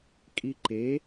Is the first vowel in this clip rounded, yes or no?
no